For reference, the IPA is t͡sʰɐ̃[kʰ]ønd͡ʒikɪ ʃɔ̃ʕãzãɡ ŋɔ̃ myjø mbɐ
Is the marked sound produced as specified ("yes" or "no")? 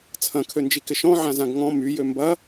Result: yes